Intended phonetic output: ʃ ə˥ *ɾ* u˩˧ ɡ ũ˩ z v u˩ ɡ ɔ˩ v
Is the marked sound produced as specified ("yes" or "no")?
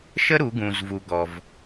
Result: yes